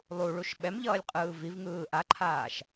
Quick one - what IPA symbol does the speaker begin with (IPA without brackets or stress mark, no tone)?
lˠ